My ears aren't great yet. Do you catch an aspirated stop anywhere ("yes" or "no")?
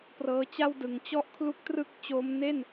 yes